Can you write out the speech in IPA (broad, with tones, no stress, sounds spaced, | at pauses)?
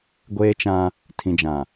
ɡʷ eː˦ t͡ʃ ã˦ | tʰ ĩ˨ d͡ʒ ã˨